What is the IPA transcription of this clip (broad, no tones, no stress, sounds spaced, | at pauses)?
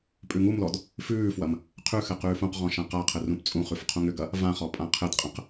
pʼ ʉ ŋ u m l ɔ d | f ʉː f w ɐ m | qʰ ʉ x ɘ q ʉː f ũ q ʁ ɔ̃ ʃ ã q a qʰ ɘ r ũ p t͡sʼ ũ χ ʉ f qʰ ũ ŋ ʏ ɡ ɐ | v ã χ ɔ pʼ ã qʰ ɘ d qʼ ə̃ q